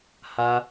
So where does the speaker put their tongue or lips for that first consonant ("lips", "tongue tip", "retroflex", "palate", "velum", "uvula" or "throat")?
throat